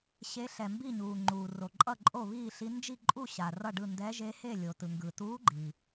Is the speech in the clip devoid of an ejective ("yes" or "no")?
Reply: no